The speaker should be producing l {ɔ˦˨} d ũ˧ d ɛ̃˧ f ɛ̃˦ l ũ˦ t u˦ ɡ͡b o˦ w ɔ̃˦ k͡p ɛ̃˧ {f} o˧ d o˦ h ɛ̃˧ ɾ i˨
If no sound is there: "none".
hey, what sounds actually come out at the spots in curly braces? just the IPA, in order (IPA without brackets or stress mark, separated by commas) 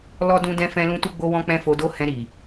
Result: ɔ˦, f